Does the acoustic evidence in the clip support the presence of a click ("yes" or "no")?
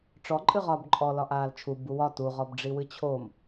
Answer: yes